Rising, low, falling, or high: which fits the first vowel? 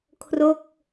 falling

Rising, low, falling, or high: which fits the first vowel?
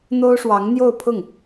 high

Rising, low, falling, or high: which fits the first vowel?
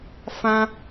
high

